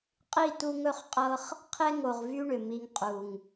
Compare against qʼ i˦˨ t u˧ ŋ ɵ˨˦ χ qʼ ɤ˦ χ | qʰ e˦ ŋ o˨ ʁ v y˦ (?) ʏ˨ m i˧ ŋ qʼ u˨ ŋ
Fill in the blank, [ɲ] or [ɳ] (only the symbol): ɳ